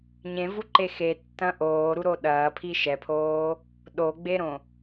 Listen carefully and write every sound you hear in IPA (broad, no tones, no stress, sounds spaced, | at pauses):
ɲ ẽ v u ǃ e x e tː ɐ̃ ʔ oː ɾ u ɾ o ɗ ɐː pʰ i ʃ ɛ pʰ oː | ɗ o ɡ͡b e ɾ õ